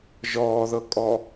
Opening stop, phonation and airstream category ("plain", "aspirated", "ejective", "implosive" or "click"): ejective